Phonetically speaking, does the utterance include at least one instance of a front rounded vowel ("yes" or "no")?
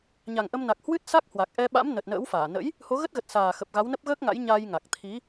no